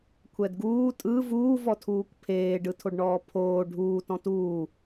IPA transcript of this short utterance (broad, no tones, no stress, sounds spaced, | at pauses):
kʷʰ ɛ d ɡ uː tʼ ɯ v uː v ɔ tʰ uː kʷ pʰ eː ɖ ɯ tʰ o ɖ ɳ ɔː pʰ oː ɖʱ uː t ɔ̃ t uː